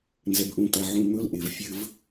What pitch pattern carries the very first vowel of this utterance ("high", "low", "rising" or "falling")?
high